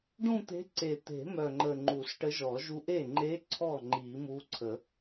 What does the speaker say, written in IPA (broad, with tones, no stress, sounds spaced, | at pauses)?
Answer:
ɖ ũ˥˧ t̪ e̤˧˥ ǀ e˨˩ t̪ e̤˨˩˦ m œ˨˩ ŋ͡ǃ ə˨˩ ŋ͡ǃ u˨˩˦ s ʈ ə˧˥ ʒ ɔ˨˩˦ ʒ u˧˥ ʔ e˥˩ ŋ͡ǃ e˧˥ ǀʰ ɔ˥˩ ŋ͡ǃ i˨˩˦ m u˧˥ ǀʰ ə˨˩˦